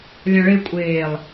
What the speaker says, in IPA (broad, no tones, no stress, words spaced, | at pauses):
lʲãɭe kʷʼeːlˠ